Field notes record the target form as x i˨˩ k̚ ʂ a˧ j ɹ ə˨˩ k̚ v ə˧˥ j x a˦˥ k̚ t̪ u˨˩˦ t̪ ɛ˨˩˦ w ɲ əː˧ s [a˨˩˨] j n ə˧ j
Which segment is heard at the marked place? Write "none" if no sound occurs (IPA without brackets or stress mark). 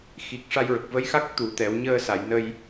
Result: a˨˩˨